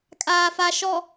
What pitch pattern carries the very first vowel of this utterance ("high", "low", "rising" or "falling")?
low